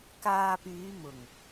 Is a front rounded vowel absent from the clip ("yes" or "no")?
no